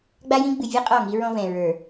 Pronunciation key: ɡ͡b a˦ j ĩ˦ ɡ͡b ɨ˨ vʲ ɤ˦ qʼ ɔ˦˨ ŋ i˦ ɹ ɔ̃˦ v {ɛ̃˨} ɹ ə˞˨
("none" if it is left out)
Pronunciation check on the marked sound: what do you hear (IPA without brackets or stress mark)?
ɛ̃˨